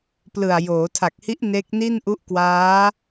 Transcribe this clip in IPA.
p l ɯ˨˩ a̯ j oː˩˦ tʰ a˨˩ k̚ h i˦˥ ʔ n e˦˥ k̚ n i˥˩ n ʔ u˦˥ ʔ k w aː˦˥

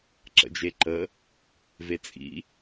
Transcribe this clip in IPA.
ǁ ə̰ d͡ʒ e ǃ ə | v e t͡sʼ ḭ

